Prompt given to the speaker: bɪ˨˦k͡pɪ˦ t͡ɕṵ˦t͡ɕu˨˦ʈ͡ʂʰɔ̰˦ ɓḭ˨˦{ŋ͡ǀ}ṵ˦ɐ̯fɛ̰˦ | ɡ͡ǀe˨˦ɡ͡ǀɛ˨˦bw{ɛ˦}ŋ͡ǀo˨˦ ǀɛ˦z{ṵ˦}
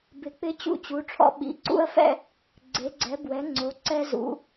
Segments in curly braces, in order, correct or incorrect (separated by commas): incorrect, incorrect, incorrect